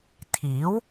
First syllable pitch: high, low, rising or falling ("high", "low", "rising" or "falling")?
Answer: rising